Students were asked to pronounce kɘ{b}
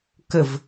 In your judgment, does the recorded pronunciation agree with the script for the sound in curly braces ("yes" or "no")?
no